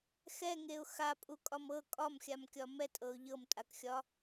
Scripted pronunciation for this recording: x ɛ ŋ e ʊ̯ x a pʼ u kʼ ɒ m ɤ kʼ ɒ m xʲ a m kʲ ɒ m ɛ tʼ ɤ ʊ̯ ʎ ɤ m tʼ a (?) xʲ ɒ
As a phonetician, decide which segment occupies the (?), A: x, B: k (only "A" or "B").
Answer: B